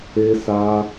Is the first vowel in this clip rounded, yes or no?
no